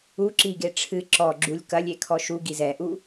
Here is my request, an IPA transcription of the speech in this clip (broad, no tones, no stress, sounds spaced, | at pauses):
u ǁ i ɡ e ʈ͡ʂʰ ɨ ǁ ɔ ɡ͡ǁ u lʲ k ɐ lʲ e kʰ ɔ ʃ u ɡ i z ɛ ʔ u